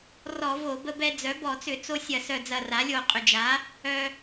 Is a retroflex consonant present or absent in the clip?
absent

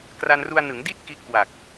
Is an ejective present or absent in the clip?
absent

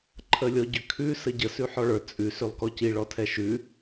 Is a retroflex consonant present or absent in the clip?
present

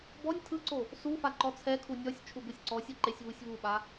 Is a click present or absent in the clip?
present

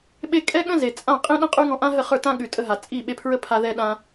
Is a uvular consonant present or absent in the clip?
present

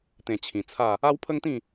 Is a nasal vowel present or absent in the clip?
present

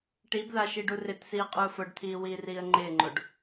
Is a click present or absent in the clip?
present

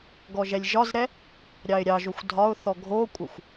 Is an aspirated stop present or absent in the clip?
absent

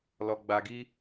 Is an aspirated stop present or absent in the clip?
absent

